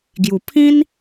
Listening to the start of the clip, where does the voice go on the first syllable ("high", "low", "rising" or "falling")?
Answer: low